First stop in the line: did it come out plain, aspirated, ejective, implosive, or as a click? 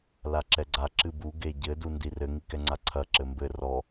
click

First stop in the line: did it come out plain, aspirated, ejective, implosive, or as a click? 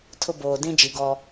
aspirated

